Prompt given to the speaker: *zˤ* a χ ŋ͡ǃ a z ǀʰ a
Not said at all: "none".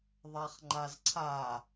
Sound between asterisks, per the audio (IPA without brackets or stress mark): ðˤ